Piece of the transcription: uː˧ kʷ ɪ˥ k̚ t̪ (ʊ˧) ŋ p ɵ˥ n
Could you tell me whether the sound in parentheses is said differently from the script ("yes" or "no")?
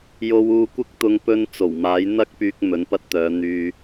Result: no